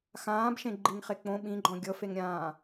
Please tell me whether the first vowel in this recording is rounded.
no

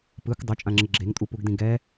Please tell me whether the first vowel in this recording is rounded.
no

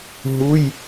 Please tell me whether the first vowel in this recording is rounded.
yes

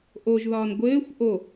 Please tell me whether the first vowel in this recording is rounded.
yes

